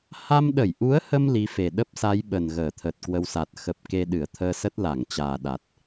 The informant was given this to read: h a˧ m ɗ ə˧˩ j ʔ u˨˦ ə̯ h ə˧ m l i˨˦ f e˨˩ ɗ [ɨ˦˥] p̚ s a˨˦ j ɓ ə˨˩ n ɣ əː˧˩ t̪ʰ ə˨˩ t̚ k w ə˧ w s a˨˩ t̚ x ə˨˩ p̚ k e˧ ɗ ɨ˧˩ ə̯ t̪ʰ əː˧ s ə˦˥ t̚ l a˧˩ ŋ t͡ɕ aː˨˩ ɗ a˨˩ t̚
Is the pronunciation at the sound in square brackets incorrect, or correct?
incorrect